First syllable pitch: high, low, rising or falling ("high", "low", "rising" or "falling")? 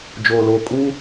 low